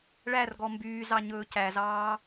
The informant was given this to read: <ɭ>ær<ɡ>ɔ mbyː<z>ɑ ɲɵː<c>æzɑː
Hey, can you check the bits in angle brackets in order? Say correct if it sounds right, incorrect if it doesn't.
correct, correct, correct, correct

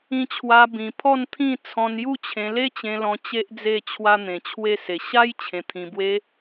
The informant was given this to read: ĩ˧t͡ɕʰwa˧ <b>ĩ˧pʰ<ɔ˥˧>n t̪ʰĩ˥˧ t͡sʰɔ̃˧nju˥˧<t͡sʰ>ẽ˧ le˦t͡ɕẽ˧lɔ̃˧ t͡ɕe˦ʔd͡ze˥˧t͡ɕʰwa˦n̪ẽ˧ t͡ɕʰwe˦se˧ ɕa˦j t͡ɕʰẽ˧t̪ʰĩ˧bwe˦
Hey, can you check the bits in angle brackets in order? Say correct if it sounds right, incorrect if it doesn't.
correct, correct, incorrect: t͡ɕʰ

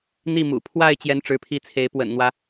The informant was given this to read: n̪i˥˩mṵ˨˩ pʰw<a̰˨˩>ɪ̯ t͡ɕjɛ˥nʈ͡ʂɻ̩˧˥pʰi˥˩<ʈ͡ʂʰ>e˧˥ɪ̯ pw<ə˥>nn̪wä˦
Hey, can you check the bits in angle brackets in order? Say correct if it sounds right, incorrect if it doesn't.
incorrect: a˥˩, incorrect: t͡sʰ, incorrect: ə̰˨˩

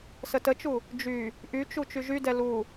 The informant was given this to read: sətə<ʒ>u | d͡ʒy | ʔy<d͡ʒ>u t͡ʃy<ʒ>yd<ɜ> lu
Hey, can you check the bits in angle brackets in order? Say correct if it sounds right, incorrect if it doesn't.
incorrect: t͡ʃ, incorrect: t͡ʃ, correct, incorrect: ɛ

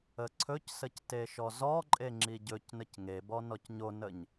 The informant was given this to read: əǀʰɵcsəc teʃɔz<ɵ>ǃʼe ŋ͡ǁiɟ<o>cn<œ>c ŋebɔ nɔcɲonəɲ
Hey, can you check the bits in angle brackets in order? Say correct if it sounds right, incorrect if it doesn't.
incorrect: ɔ, incorrect: ɵ, incorrect: ə

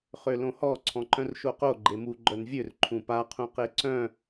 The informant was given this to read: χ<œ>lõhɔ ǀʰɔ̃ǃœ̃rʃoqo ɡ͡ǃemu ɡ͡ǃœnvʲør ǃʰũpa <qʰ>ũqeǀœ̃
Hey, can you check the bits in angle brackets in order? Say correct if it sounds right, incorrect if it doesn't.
incorrect: ø, correct

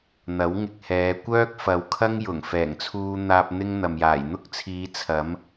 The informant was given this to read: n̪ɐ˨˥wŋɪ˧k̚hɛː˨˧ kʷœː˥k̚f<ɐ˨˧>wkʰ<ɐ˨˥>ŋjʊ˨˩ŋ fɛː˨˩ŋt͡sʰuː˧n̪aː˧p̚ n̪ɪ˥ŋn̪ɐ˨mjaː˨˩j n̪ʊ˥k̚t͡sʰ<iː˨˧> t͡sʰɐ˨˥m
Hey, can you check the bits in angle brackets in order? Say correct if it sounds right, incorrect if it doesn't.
correct, incorrect: ɐ˥, correct

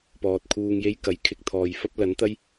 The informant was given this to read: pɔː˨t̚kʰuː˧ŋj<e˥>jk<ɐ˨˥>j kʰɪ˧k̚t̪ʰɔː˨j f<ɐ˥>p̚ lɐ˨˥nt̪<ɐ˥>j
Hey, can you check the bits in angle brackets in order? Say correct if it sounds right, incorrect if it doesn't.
correct, correct, correct, correct

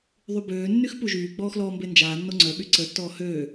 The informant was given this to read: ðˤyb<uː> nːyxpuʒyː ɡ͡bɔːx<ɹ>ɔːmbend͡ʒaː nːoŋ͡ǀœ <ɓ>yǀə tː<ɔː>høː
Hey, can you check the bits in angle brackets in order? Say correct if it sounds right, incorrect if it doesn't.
incorrect: øː, incorrect: l, correct, correct

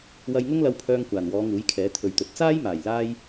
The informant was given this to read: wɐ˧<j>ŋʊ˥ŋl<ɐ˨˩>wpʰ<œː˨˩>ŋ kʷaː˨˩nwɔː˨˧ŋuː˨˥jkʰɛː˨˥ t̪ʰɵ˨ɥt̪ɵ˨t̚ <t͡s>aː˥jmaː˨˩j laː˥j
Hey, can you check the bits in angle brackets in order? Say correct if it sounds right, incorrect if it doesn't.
correct, incorrect: ɐ˧, incorrect: œː˧, correct

